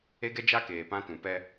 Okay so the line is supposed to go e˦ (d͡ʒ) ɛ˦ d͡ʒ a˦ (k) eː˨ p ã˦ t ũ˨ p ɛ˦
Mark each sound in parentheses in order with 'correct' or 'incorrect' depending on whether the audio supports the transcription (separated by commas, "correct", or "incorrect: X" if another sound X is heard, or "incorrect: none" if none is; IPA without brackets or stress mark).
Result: incorrect: ɡ, correct